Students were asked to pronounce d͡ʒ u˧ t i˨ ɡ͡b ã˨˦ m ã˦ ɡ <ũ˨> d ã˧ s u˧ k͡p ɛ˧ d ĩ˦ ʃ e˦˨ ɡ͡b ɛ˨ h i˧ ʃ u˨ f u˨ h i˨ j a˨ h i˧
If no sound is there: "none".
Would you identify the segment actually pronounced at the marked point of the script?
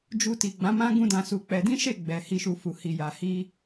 ũ˦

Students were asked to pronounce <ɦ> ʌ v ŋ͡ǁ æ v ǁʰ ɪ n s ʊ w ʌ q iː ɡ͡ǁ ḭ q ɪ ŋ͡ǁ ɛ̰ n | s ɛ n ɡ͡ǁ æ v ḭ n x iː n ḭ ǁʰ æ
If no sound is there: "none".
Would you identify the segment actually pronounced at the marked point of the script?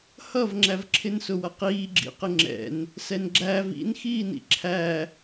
h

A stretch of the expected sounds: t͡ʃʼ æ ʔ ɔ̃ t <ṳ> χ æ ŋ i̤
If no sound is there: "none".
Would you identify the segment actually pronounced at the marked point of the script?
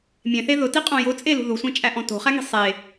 o̤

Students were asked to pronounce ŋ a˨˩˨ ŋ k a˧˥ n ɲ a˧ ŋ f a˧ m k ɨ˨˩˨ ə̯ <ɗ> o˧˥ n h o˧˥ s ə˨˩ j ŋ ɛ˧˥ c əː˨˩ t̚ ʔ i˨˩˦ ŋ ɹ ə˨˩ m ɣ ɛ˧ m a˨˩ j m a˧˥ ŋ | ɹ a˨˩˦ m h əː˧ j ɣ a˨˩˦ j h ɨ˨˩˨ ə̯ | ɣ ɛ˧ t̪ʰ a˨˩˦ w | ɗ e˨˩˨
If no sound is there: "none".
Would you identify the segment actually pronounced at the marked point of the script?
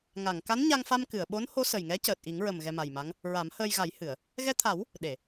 ɓ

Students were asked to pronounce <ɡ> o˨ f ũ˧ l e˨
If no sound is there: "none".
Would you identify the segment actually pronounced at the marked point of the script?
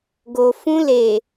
ɡ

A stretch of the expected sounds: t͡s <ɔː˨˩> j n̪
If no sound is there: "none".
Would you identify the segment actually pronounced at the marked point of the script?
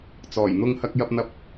ɔː˨˩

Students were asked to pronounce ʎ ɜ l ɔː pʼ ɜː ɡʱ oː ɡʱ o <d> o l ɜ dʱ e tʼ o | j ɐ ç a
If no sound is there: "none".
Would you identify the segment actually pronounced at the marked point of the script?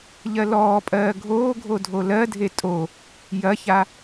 dʱ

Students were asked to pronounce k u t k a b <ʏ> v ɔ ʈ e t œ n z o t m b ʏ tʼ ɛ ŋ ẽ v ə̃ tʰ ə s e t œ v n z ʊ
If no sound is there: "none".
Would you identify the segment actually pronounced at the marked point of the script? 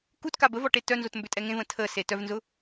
ə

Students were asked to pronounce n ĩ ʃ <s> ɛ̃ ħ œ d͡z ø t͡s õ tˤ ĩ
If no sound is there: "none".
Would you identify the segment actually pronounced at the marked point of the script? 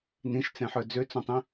t͡s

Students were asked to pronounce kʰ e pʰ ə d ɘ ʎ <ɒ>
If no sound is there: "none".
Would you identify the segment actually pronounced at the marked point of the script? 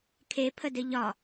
ɒ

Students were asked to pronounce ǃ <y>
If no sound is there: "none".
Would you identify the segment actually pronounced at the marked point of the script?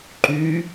y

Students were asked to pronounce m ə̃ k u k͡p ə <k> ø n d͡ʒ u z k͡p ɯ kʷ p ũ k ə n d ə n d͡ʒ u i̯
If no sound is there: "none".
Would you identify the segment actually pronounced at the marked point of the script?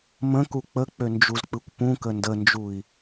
k͡p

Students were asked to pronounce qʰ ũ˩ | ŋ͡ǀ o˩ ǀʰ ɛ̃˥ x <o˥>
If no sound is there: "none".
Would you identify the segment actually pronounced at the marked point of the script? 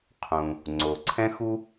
u˥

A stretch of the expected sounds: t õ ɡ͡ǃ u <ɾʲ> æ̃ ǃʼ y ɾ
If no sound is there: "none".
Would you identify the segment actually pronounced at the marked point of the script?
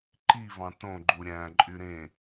ɾʲ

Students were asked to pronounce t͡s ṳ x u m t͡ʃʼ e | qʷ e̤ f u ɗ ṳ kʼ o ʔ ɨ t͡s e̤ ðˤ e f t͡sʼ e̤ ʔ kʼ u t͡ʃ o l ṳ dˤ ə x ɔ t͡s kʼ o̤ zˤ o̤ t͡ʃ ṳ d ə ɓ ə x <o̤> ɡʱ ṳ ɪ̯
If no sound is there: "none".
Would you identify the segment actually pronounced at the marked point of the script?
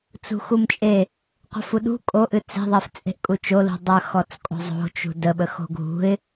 o̤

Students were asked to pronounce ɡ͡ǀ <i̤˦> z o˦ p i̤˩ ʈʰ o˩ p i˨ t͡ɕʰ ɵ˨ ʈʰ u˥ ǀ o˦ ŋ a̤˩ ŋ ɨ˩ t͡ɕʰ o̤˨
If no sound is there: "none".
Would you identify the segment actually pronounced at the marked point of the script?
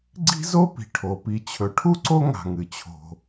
i̤˦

